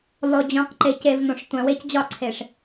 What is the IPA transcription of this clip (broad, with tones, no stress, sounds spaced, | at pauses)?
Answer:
lˠ o˨ d͡ʑ õ˨ q ǃ e˨ c e˨ v n õ˨ ʂ tʷ æ̃˨ w e˧ c d͡ʑ ɒ˦˨ ǀʰ e˨ ʂ